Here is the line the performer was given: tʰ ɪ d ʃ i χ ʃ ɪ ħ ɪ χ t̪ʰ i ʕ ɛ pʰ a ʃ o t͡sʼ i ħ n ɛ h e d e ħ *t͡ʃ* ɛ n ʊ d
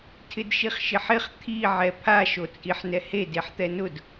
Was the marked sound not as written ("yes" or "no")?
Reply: yes